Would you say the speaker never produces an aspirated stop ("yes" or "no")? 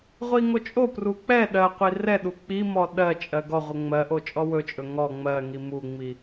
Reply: yes